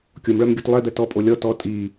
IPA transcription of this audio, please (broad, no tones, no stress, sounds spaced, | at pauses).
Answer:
kʲ o m ɭ œ m ɡʲ u t lˠ ɛ d̪ ɛ t ɔ pʼ o lʲ ɔ t ɔ tʼ i